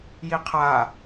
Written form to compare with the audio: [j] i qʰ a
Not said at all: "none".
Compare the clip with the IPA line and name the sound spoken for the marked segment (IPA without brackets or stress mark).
j